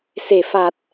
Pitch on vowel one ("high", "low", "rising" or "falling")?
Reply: low